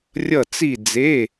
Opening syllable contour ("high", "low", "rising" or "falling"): falling